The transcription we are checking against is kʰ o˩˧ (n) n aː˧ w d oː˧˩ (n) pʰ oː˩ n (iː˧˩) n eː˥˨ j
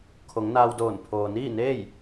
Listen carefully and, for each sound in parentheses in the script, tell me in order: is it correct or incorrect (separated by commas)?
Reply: incorrect, correct, incorrect